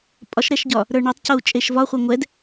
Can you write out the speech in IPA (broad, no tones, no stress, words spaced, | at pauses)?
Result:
pʼɒʃɾɛʃɟɒ | ɾə˞ɳɵtˤcou̯ t͡ʃʼeʃvɒχʷɛ ŋʷɛd